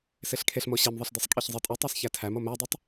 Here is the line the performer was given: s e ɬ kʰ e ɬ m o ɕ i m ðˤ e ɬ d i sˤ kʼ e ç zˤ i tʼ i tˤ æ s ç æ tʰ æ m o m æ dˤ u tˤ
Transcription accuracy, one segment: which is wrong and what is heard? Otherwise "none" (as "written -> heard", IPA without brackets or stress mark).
none